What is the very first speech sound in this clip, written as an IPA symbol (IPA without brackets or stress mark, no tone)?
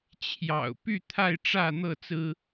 t͡ɕʰ